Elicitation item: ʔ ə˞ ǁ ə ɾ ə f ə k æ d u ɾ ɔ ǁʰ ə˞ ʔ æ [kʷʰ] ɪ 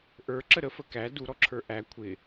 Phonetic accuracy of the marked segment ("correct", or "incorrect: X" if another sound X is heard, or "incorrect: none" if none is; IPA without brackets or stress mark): correct